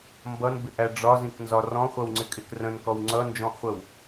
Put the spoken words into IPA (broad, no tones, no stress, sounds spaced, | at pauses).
m b ʌ n b ɪ ʔ æ ɖ͡ʐ ɒ z ĩ k n z ɒ r ɔ̃ χʷ ʌ w ŋ͡ǀ ɪ kʼ ɪ k r ə̃ n k ɔ w ŋ͡ǀ ʌ n d͡ʒ ɔ̃ ʔ χʷ ə w